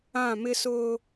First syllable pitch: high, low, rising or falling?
falling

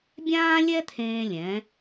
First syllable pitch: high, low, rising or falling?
high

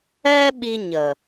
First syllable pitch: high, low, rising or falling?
high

